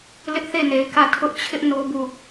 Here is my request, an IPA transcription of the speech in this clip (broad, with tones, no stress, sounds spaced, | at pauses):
l ɪ˦ ʔ θ e˦˨ n e˨ ɪ̯ k ä˦˨ tʰ ʊ˦ ʔ t͡ɕʰ ɪ˦ ʔ n o˦ b u˦˨